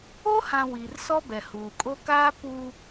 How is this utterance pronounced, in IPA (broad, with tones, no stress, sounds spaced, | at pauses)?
o˦ h ã˨ w i˨ r s ɔ˦ b ɛ˨ h uː˨ kʼ o˦ k aː˦ p u˦